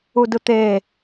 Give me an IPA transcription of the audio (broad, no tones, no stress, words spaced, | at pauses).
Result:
udɯt̪eː